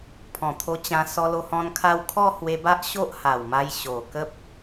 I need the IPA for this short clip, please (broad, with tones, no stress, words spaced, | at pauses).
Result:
pʰɔ̃˨˩t̪ʰo˧t͡ɕã˧ sɔ˧lo˧hɔ̃˧n kʰa˦w kʰɔ˥˧hwe˧ba˦ʔ ɕo˦ʔha˨˩wma˧j ɕo˨˩ kə˦p̚